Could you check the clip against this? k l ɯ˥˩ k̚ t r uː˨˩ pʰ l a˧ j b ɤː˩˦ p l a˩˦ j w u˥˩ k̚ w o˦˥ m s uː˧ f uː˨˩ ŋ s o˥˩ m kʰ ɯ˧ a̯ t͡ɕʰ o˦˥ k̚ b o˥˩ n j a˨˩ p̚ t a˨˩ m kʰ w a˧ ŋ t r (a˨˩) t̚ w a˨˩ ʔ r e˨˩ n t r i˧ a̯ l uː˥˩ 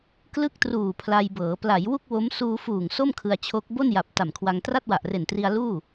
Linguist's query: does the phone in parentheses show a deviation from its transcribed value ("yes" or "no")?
yes